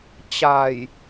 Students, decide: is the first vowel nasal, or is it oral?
oral